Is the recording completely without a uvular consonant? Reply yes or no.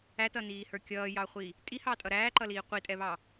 no